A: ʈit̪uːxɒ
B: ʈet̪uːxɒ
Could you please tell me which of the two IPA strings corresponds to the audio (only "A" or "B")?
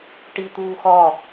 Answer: A